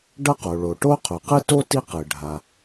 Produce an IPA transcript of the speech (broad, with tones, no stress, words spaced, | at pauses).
ɖʌ˥qo˩ɭo˩ ʈo˥qʰu˩qɯ˥to˥ ti˥qɯ˩ ɖʱa˩